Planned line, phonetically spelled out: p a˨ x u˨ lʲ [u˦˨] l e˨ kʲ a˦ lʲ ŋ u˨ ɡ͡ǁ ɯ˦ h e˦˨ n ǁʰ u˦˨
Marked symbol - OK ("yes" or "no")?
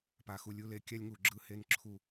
no